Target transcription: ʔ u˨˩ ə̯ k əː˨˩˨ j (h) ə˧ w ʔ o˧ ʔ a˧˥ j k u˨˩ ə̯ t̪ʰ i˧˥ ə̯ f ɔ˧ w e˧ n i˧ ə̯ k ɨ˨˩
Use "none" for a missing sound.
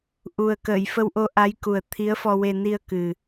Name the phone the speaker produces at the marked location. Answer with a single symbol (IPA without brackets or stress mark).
f